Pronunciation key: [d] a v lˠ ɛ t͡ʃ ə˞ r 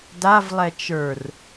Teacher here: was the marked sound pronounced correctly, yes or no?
yes